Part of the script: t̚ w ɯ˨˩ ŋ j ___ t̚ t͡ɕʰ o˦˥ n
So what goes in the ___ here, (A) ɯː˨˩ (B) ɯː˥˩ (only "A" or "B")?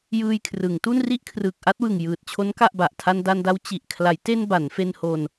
A